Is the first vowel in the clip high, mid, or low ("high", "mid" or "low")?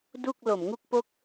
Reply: high